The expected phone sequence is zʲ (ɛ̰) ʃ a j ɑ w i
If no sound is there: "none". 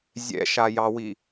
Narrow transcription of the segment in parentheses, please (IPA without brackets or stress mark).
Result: ɛ̰